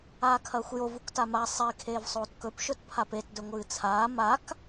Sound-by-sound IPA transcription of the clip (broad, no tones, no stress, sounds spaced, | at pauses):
aː kʰ ɐː xʷ j o v u k t a m a sˤ i kʰ eː v sˤ oː t k ɵ p ʃ ɵ t pʰ a p e t d ɵ ŋʷ ɨː t͡sʰ aː m a k